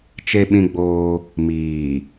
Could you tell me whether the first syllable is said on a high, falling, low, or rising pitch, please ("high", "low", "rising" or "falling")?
high